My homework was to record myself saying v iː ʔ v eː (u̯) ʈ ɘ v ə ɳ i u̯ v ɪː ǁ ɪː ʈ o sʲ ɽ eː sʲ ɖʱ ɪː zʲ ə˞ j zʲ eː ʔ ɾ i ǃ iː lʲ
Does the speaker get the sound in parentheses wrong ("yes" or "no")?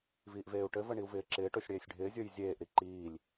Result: no